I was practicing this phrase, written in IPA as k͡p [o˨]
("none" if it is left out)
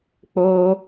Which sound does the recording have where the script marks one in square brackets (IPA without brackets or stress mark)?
o˦